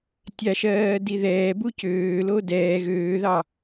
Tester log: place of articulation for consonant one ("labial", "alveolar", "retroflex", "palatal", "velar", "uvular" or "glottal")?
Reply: alveolar